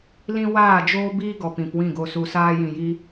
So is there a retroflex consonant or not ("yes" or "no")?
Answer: no